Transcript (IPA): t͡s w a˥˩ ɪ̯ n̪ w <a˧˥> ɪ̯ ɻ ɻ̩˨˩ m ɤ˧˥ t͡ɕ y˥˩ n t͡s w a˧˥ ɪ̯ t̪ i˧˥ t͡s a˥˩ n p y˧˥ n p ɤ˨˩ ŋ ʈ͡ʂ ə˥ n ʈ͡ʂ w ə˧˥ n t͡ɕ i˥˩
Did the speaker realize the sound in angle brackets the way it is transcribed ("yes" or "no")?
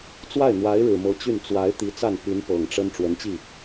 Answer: yes